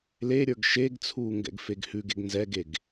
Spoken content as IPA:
l e ɾʲ ə˞ ɡ ʃ e ɡ t͡sʰ uː ŋ ɡ ɛ̰ ɡ f e ɡ h ʉ ɡ e ɡ n z ɛ ɡ e ɡ

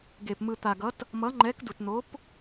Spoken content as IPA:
ɡ e˨ p m ɯ˨ t̪ a˨ ɡ ʌ˨˥ t | m ʌ˨˥ ŋ͡ǃ ɛ˨˥ k d u˨ t n̪ o˨˥ p

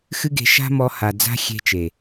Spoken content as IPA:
x ɨ˦ ɡ e̤˧ ʃ a̤˦ m ɔ˧ h a˨ d͡z a̤˦ xʲ e̤˧ t͡ʃ e˨

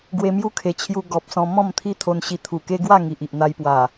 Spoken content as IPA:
ɡ w e˧ m j u˦ kʰ e˨˩ t͡ɕʰ j u˧ ɡ ɔ˨ p̚ s ɔ̃˧ m ɔ̃˥˧ m t̪ʰ i˦ t̪ʰ o˧ n ɕ i˧ t̪ʰ u˨˩ k e˦ ɡ w a˥˧ ŋ i˨ ʔ i˨ ʔ n̪ a˧ j p w a˨˩

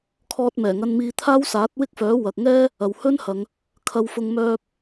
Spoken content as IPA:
kʰ ɔː˧ t̚ m ɛː˨˩ ŋ ɐ˧ n m iː˧ t̪ʰ aː˥ w s aː˨˥ t̚ w ɪ˥ k̚ f œː˨˥ w ɐ˨ k̚ ŋ ɛː˥ | ɐ˨ w h ɵ˥ n h ɐ˨˧ ŋ | kʰ ɐ˧ w f ʊ˧ ŋ m œː˥ p̚

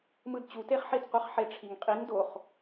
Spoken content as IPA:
m ɯ d t͡ɕ u t e χ ħ i d qʷ ɑ χ ħ e ʈ͡ʂʰ i ŋ qʼ i ŋ d o χ

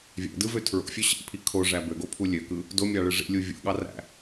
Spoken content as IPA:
vʲ æ̰ d ɯ v ø tʰ ɹ o̰ fʲ ø ɕ ḭ pʰ i kʰ o ʐ æ b ø ɡ o pʰ u lʲ ø k ɯ | d o mʲ ɑ ɭ ɯ ʐ ḭ lʲ u vʲ o̰ ɠ ɑ r æ̰

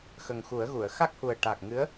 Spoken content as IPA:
x ə˨˩ ŋ x u˨˩˦ ə̯ ɣ u˨˩˨ ə̯ x a˦˥ k̚ h u˨˩ ə̯ ʈ a˨˩ k̚ ŋ ɨ˧˥ ə̯

